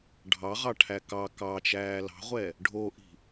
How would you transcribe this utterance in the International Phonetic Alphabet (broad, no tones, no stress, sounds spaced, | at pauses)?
ɖʱ ɑ ʁ ɑ ʈʰ æ k ɑ k ɑ t͡ʃ æː l ɑ̤ ʁʷ ɛ | ɖʱ o ʔ i̤